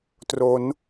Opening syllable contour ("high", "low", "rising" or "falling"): rising